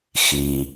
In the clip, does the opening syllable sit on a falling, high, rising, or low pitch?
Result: low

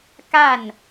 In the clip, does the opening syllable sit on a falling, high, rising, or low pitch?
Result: falling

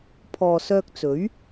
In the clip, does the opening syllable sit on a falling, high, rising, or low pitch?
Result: low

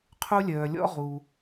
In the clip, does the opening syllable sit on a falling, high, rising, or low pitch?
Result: high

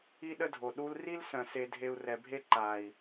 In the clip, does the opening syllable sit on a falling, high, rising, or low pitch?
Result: high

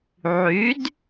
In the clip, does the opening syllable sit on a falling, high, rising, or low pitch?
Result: rising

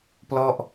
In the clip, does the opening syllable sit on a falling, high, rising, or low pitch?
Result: falling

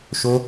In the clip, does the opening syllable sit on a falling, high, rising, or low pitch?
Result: high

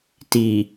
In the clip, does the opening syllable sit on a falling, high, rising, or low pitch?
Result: low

